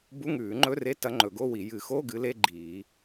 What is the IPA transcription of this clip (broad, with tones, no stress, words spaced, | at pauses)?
bu˧˥˧ŋʉː˨˩˦ŋ͡ǃɵ˧˥˧re˧˥˧ tɐ˧˥ŋ͡ǃɵ˨˩˦ɡo˧˥˧wi˨˩˦ jɨ˨˩˦xo˧˥˧ ɡɨ˧˥le˧˥˧ɡ͡ǃiː˨˩˦